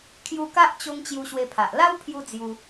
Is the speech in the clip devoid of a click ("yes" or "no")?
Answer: yes